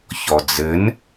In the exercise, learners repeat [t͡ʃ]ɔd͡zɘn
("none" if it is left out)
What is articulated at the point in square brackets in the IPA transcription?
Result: ç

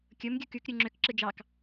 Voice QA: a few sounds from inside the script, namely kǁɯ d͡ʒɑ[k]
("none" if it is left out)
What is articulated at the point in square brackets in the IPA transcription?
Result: k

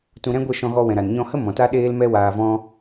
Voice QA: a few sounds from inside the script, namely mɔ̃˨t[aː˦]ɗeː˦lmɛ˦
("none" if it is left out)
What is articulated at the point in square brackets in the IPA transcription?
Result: a˦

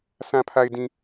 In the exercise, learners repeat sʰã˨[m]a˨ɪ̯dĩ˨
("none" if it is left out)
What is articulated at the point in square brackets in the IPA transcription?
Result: pʰ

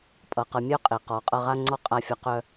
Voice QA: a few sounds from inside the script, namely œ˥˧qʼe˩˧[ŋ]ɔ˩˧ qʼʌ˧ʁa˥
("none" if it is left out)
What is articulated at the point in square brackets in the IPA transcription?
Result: q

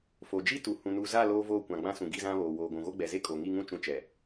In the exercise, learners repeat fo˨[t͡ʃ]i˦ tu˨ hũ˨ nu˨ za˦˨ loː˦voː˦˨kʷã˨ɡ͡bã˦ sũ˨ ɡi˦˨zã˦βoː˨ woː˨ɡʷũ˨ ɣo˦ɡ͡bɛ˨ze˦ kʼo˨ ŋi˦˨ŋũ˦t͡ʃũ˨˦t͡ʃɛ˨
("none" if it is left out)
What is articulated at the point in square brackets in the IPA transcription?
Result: d͡ʒ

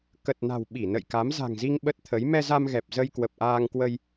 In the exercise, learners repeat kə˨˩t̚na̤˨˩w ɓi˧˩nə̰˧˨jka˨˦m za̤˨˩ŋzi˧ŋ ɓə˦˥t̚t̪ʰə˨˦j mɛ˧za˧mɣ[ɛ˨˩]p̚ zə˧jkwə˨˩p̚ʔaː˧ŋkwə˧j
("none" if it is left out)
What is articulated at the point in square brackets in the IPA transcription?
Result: ɛ˨˩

